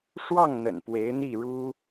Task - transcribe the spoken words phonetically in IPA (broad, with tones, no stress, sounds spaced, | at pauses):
ʂ w ɑ˥˩ ŋ n̪ ə̰˨˩ n p w e˧˥ ɪ̯ n̪ i˥˩ ɻ u˥